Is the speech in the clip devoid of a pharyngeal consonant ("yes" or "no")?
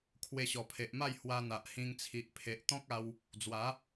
yes